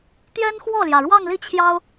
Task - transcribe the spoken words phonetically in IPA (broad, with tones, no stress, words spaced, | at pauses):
t̪jɛ˥nxwɔ˥˩ljä˩ ɻwɑ˥˧ŋli˥˩t͡ɕʰjɑ˥ʊ̯